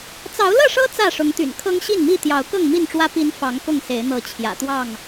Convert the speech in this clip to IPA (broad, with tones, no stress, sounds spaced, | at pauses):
t͡s ɑ˨˦ ʊ̯ l ɤ˥˨ ʂ ɤ˦ t͡s ä˥˨ ʂ ʊ˨˦ ŋ t̪ y̰˨˩ n kʰ ɤ˦ ŋ ɕ i˥˨ n m i˥˨ t̪ j ɑ˨˦ ʊ̯ k ɤ˥˨ ŋ m i˥˨ n ʈ͡ʂ w ä˦ p i˨˦ n f ɑ˨˦ ŋ k ʊ˥˨ ŋ s e˨˦ ɪ̯ n̪ ɤ˨˦ t͡ɕʰ j ä̰˨˩ t̪ w ɑ˥˨ ŋ